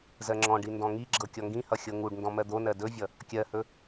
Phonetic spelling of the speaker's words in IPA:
z ɜ ŋ͡ǁ ɔ̃ ɖ i n d ɔ̃ ŋ i ɡ͡ǁ ɤ kʲ ɔ ŋ ɡ ĩ h ʌ xʲ ɤ ŋ u ɖ n d ɔ̃ m ɜ d̪ o n ɜ d ɵ vʲ ʌ | kʲ ɜ h ɵ

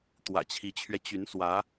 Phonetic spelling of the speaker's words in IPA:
t̪ w ä̰˨˩ t͡ɕʰ i˧˥ t͡ɕʰ ɥ ɛ˧ t͡ɕ y˧˥ n s w ä˧˥

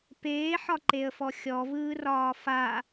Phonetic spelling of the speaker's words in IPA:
p eː ħ ɒ ǃ e ə̯ f ɔ xʲ ɔ v ɯː r ɒː f a

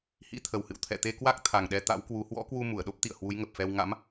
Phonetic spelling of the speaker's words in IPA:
h ḭ˧˥ t̪ʰ ə˨˩ w h ɨ̰˧˨ w t̪ʰ ɛ̰˧˨ t̪ e˧ k w a˦˥ k̚ t̪ʰ a˨˩ ŋ ɗ ɛ˧ t̪ a̰˧˥ w k w u˨˦ h w ɔ̰˧˥ k w u˧ m u˧˩ ə̯ ɗ o˦˥ p̚ t̪ ḭ˧˨ ə̯ h w u˨˦ j ŋ ə˨˩ p̚ f ɛ˧ w ŋ a̰˧˥ m

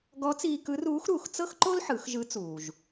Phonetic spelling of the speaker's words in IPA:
ɡ ɔ˧˥ t͡s iː˧ k ɯ˧˥ r uː˧˥ x ɾ uː˩ x t͡s ɤ˥ x ǃ o˥ l ħ ɯ˩˧ x ʒ ɯ˧˥ t͡s uː˩ ʒ

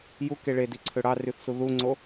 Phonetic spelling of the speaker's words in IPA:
j u k e ɭ e d i ǀʰ ø ɽ ɑ r y θ s u ð u ŋ͡ǀ o

